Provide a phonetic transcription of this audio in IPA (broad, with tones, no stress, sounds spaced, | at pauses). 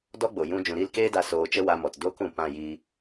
d ɔ˦ ɡ͡b o˨ j ũ˧ d͡ʒ ũ˨ ɾ i˦˨ l k eː˦ d a˧ s oː˧ t͡ʃ ə˦ w a˧ m ɔ˨ t d oː˦ k ũ˨ p ã˦˨ j iː˧